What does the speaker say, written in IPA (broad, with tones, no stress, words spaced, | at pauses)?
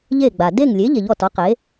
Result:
ʎe˥˨ɡ͡ba˩ de˥˨ŋlʲe˩˥ ʎe˩ʎɔ˥˨tɔ˩˥ qe˩˥